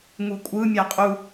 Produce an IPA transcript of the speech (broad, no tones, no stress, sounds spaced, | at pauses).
ŋ u kʷʼ ɯ mʲ a qʼ u